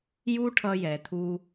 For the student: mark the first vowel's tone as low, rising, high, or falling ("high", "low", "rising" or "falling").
high